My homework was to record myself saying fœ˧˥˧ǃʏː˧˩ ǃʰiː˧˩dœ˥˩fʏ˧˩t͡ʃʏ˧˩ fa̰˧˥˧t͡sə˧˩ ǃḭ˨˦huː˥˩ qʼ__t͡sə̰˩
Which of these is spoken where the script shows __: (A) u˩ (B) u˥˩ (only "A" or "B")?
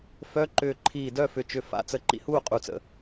A